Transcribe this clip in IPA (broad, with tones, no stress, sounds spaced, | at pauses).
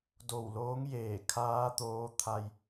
d o˧˩ w l oː˧˥ ŋ j eː˧˩ kʰ aː˧˥ t̪ oː˧˥ t̪ʰ a˧ j